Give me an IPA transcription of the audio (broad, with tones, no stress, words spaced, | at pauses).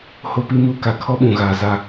ho˦pi˦muː˦ ka˨kʰɔ˦ɓũ˨ɣaː˨ za˦